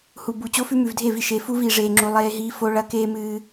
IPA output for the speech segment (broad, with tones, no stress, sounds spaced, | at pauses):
h u˨ b u˨ t͡ɕ o˦ f ʉ˦ m ʉ˨ v dʱ e˦˨ v i˨ ʃ e˨ f u˦ v iː˨ ʐ eː˨ ŋ͡ǁ u˨ lˠ eː˦ ɦ iː˦ f o˦ ɭ ɐ˦ k eː˦ m ɨː˦